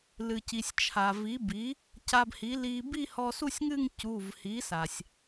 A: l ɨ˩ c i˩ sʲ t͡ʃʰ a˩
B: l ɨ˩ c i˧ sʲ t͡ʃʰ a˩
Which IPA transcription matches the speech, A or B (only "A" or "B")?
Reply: A